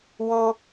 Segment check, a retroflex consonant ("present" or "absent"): absent